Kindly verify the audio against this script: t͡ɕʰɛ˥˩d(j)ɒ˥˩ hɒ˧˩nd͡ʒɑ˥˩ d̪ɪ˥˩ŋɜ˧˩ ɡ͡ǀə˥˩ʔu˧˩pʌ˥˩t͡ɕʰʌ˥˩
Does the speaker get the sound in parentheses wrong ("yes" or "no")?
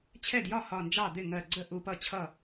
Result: no